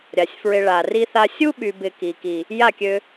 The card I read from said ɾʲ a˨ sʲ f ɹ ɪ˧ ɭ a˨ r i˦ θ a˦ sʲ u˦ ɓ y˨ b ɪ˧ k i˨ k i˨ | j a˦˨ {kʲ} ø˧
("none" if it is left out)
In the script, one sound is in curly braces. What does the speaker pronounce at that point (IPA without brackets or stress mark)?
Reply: kʲ